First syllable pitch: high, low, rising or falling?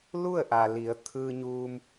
falling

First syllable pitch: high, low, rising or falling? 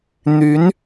rising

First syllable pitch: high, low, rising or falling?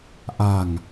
low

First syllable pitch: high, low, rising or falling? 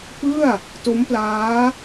falling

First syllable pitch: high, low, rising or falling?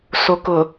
low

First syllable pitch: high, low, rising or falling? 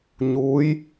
rising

